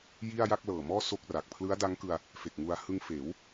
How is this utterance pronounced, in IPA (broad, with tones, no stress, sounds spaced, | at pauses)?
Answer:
j i˥˩ a̯ j a˥˩ k̚ l ɤː˨˩ m ɔː˥˩ s o˥˩ k̚ r a˨˩ k̚ pʰ l ɯ˦˥ a̯ d a˦˥ ŋ k ɯ˧ a̯ | f e˨˩ k̚ ŋ u˧ a̯ h ɯ˧ ŋ f eː˩˦ w